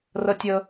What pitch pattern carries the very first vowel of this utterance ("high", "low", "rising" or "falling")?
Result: high